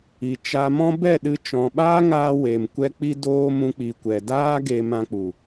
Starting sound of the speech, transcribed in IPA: i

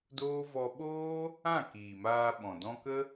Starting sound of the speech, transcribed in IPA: d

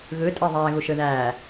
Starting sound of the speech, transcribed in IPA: ɣ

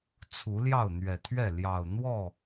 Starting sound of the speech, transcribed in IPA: t͡sʰ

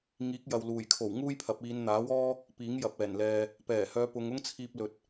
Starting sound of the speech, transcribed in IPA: ŋ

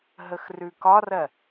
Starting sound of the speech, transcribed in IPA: ɦ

